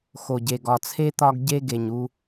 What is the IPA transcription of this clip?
x o˨ ɟ e˨ ɡ ɒ˨ t͡sʰ e˦ t̪ ɒ˦ ɡ ɟ e˦ ɡ e˨ ɲ u˦

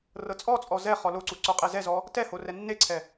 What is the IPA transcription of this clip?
r ɤ t͡sʼ ɔ t͡sʼ ɔ z ɛ χ ɔ l o ǀ u ǀ o qʼ e z ɛ z ɔ | t ɛ h o r ɛ nː e ǀʰ ɛ

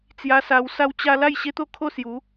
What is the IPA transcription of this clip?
t͡s j a˧ s a˧ w s a˧ w t͡ɕ a˧ l a˥˧ j ɕ e˦ t̪ o˥˧ kʰ o˥˧ s j u˨˦

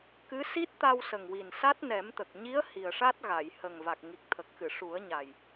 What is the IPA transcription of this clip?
k ɨ˧˥ s i˦˥ t̚ t̪ a˧ w s ə˨˩ ŋ w i˨˩ n s a˦˥ t̚ n ɛ˨˩˦ m t̪ ə˨˩ k̚ ɲ i˧˥ ə̯ h i˨˩ ə̯ ʂ a˦˥ t̚ ɣ a˨˩˨ j h ə˨˩ ŋ v a˨˩ k̚ ŋ i˨˩ k̚ t̪ʰ ə˨˩ k̚ x ɨ˨˩˨ ʂ u˨˩˦ ə̯ ɲ a˨˩ j

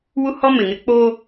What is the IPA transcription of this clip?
w u˦ h ɔ˦ m ɪ˨ ŋ ɪ˦ k͡p o˦

